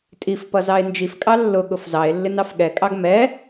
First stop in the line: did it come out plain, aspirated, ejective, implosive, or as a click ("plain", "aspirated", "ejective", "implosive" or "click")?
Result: ejective